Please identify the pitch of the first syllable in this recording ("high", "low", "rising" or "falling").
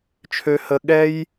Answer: low